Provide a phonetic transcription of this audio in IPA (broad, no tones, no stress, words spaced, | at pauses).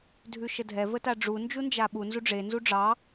dʱʉʃədʱɛ vətaɖ͡ʐu nd͡ʒund͡ʒaɓu nzuɖ͡ʐe nzuɖ͡ʐɑ